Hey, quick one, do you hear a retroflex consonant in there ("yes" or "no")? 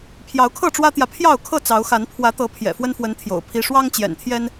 yes